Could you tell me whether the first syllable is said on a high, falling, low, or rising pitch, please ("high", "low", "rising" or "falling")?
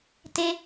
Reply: high